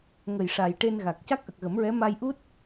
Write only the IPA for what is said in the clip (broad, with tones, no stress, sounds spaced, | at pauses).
ŋ ə˨˩ j ʂ a˨˩ j ʈ e˧ n ɣ a˨˩ k̚ c a˦˥ k̚ ʔ ə˨˩ k̚ ɣ ə˨˩˦ m ɹ ɛ˧˥ m a˧ j ʔ u˦˥ t̚